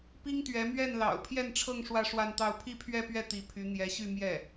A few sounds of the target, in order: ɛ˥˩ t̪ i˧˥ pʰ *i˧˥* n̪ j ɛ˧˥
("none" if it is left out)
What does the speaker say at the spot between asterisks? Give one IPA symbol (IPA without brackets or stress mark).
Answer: y˧˥